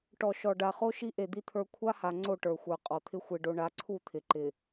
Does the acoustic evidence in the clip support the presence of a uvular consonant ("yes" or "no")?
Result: yes